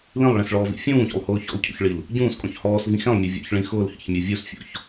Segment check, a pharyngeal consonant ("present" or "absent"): absent